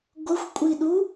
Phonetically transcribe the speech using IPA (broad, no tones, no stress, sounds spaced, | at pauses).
ɡʷ ə xʷ kʷʼ i ɗ u